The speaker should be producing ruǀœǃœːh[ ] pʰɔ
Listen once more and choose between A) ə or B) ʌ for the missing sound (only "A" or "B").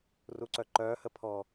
A